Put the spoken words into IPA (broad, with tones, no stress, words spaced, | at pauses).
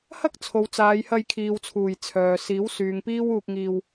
hɐ˥k̚ t͡sʰo˨w t͡saː˨˧jhɐ˧j kʰiː˨wt͡sʰuː˨˩j t͡sʰœː˨ siː˨˥wsyː˨ŋpiː˥w uː˧k̚ŋiː˧w